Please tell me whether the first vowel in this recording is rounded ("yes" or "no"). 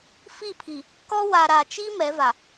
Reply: no